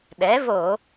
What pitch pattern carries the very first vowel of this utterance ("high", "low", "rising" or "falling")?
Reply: rising